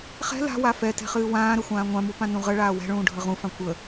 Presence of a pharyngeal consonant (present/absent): absent